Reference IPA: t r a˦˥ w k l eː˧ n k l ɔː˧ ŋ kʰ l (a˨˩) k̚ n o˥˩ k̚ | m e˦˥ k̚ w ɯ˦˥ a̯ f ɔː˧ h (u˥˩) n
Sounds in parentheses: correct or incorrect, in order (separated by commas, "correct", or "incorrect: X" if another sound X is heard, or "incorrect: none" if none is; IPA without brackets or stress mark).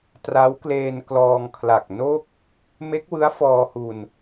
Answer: correct, incorrect: u˧